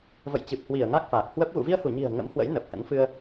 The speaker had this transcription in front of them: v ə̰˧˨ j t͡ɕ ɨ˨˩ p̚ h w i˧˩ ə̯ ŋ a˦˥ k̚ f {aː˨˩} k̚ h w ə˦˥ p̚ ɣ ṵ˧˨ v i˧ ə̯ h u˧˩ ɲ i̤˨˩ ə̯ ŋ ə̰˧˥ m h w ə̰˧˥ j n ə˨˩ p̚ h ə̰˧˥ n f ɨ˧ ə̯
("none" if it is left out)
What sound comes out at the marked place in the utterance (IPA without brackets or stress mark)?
aː˨˩